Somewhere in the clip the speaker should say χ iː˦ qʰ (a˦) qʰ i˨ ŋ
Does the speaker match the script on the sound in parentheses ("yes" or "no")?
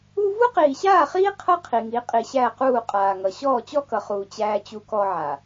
no